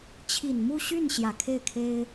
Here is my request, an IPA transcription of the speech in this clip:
t͡ɕʰ i˨˩ n m u˥˧ ɕ y˥˩ n ɕ j ä˨˩ kʰ e˥˩ ɪ̯ kʰ e˥ ɪ̯

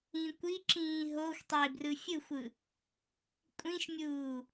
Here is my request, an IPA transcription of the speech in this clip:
ĩ kʷ i ǁ ĩː ɦ o xʷ tˤ e b r ɯ fʲ ɯ xʷ ɯ | kʷʼ ĩ ʃ mʲ uː

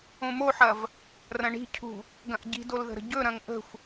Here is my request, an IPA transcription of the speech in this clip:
õ m o ħ ɐ v | r ɐ̃ ɳ i̤ cʰ ṳ | ɡ ɐ̃ ʔ ɟ i̤ d o l ð ə̤ ɾ ə̤ ɟ ɵ ɾ ɐ̃ ŋ ʔ ə̤ xʷ

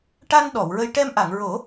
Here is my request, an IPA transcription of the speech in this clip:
ʈ a˧ n ɗ ɔ˨˩˨ w ɹ ə˧ j ʈ ɛ˧ m ʔ a˨˩˨ ŋ ɹ o˨˩˦

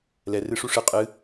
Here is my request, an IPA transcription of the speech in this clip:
l ɛ r ɨ ʂ u ʂ ɨ qʼ ɨ

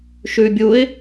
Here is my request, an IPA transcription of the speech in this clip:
ʃ ʉ bʲ u ɪ̯

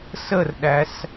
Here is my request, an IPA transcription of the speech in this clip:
s ə r ɗ æ s

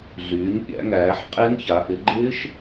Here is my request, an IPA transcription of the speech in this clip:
ɮ yː˩˧ ɲ pʲ æ̰˩˧ ŋ æː˩˧ ħ qʼ e˦˥ ŋ ç a˩˧ ʔ ɪ˩˧ ɡ͡ǃ ɪː˦˥ ʃ

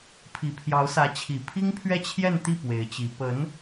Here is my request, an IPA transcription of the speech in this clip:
pʰ i˨˩ pʰ j ɑ˧˥ ʊ̯ s ä˧˥ t͡ɕʰ i˨˩ pʰ i˥ ŋ pʰ ɥ ɛ˥˧ t͡ɕʰ j ɛ˥˧ n t̪ i˥˩ p w e˧˥ ɪ̯ t͡ɕ i˧˥ p ə˧˥ n

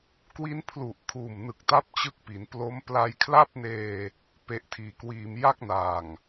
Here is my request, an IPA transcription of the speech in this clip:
k w i˦˥ n pʰ l u˨˩ ʔ kʰ uː˨˩ m n ɯ˨˩ k̚ t a˦˥ p̚ t͡ɕ ɯ˦˥ k̚ p i˩˦ n p l o˦˥ m p l a˧ j kʰ l a˥˩ p̚ n eː˧ | p e˦˥ ʔ tʰ iː˧ k w iː˧ m j a˥˩ k̚ n aː˨˩ ŋ

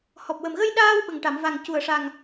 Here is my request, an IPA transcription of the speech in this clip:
h ɔ˨˩ p̚ w ə˨˩ m ɣ ə˧ j ɗ aː˧ w ɓ ə˨˩ ŋ ʈ a˨˩˨ m v a˨˩ ŋ c u˨˩ ə̯ ʂ a˨˩ ŋ

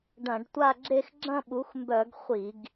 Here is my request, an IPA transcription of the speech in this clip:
ɖ ɐ̃˧˩˧ ɖ tʷ a˥˧ ɡ͡ǁ e˥˧ x ɡ͡ǁ ɐ̃˥˧ ɓ u˩˥ x m b œ˧˩˧ ɡ χʷ i˧˩˧ ɡ

